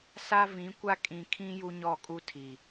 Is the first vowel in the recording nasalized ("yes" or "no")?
no